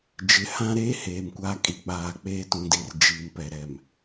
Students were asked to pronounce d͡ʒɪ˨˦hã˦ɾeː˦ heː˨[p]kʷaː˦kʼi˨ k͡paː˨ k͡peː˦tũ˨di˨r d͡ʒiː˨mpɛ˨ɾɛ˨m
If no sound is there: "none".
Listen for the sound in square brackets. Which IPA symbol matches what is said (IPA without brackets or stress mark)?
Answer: m